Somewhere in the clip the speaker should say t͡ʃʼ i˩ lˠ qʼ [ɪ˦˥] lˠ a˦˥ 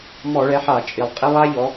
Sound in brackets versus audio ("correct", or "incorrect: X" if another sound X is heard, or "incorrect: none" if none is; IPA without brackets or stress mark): incorrect: i˦˥